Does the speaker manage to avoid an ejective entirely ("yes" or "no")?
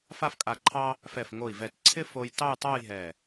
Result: no